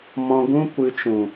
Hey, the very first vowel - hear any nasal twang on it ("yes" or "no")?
yes